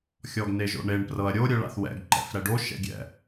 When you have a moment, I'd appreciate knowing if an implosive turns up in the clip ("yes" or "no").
no